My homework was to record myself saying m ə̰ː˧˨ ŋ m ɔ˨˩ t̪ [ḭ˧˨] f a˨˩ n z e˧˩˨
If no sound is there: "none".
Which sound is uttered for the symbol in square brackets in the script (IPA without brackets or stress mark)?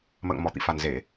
ḭ˧˨